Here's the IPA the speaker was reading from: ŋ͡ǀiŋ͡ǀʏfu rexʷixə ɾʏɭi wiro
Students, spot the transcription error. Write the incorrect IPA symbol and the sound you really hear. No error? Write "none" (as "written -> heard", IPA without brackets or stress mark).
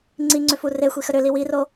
ɭ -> l